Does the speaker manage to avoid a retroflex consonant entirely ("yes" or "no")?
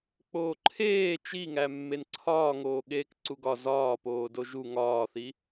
yes